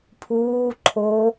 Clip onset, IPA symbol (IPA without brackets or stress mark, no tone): pʰ